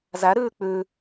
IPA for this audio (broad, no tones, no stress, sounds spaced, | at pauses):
z æ ɾ ʉː k͡p ʉ